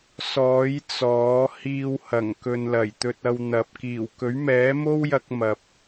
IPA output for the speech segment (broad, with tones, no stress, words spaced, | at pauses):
sɔː˨˥j t͡sɔː˨˥ hiː˧whɐ˨˩ŋkɵ˨n lɐ˨˩jt̪ɵ˧t̚ɐ˧wn̪ɐ˨p̚ kiː˨˩w kɵ˨˥ɥmɛː˨˥mo˥wjɐ˧k̚ mɐ˨p̚